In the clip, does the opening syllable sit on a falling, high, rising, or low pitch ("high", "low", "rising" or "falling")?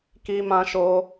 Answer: high